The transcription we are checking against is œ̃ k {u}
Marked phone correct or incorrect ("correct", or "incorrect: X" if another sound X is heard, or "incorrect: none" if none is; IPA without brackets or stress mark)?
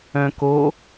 incorrect: o